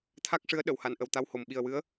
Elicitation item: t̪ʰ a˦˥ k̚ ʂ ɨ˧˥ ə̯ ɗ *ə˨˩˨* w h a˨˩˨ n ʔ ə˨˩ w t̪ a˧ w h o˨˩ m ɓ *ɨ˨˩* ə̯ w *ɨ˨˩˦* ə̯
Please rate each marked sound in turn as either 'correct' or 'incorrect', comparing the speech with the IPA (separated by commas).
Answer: correct, incorrect, incorrect